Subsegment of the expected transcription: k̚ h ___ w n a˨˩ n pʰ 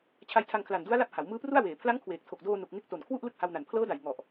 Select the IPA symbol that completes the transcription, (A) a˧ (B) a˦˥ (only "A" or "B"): A